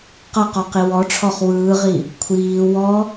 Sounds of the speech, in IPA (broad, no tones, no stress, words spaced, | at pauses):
qʌqɔqi wɔʈ͡ʂʰɔχ wɯːʁi | kʷʰiː wɔ